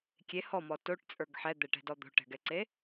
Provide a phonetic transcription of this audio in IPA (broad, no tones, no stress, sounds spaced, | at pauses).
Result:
kʲ e h ɔ m ɔ t o ʈ t͡sʼ ə˞ ɡ ħ ɛ d̪ ɛ ʈ ɛ̤ d ɔ d̪ o̤ ʈ ɛ̤ ɡ ɛ ǀ e